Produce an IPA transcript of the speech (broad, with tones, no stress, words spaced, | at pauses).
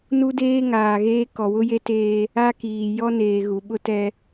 nu˦deː˦ŋaː˨ɣeː˦ kɔ˨wʊ˦je˦teː˦ | a˦kiː˨ jɔ˦neː˨ ɣu˨ɓʊ˦tɛ˦